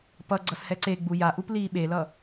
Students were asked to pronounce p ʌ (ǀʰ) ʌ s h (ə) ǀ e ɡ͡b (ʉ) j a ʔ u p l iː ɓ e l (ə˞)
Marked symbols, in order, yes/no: no, no, no, no

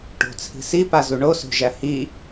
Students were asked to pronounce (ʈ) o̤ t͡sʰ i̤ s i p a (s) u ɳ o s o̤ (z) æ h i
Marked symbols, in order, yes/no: yes, no, no

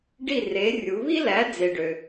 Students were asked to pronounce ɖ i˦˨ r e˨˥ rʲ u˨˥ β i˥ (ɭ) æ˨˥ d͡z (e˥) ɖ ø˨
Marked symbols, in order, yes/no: no, no

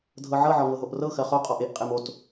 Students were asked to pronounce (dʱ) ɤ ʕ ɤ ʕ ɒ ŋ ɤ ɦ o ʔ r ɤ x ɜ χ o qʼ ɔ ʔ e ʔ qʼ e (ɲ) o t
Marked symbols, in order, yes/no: yes, no

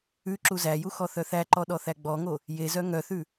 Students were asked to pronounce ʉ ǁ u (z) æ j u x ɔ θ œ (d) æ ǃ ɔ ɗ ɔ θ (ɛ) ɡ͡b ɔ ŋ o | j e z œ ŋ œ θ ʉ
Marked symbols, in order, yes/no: yes, no, no

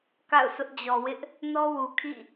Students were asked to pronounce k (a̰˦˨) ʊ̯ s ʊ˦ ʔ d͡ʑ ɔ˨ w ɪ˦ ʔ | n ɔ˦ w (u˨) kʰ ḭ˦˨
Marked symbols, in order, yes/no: yes, yes

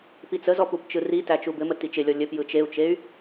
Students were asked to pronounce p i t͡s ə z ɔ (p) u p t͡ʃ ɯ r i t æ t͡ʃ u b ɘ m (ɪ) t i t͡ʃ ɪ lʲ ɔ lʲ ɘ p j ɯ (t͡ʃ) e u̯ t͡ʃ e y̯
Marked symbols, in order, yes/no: yes, no, yes

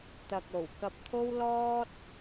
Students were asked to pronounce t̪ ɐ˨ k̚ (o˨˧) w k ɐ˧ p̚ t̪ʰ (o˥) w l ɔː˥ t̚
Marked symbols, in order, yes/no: no, yes

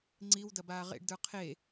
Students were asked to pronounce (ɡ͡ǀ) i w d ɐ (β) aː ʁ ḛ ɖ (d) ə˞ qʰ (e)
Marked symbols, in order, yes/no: no, no, yes, yes

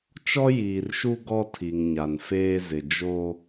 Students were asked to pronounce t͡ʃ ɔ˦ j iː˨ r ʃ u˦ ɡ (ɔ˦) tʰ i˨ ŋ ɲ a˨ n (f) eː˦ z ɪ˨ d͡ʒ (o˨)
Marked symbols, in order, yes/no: yes, yes, no

